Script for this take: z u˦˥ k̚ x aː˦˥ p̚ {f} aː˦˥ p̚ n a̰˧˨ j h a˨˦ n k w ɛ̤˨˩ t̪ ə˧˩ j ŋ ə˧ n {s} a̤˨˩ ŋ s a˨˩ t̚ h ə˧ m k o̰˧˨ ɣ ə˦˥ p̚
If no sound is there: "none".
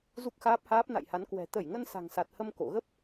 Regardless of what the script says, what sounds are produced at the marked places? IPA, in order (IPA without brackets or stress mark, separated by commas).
h, s